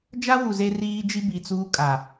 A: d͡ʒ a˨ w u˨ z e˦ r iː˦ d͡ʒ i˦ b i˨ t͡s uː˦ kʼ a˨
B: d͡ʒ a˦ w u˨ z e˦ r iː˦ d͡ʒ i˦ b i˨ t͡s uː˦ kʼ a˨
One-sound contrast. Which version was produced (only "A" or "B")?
B